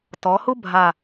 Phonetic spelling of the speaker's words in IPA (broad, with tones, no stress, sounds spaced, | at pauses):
t ɔ˩˧ h u˥ bʱ a˧˩